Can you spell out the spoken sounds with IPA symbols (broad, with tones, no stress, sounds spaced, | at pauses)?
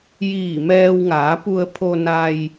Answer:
j iː˧˩ m ɛː˧ w ŋ aː˩˧ p u˧ ə̯ pʰ o˧ n a˧ j